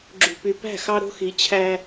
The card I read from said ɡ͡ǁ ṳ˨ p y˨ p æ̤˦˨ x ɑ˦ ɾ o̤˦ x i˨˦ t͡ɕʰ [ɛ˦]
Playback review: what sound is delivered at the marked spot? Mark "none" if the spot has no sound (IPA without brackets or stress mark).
æ˦